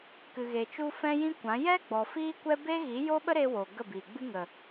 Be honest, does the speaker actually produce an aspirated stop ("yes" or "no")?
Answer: no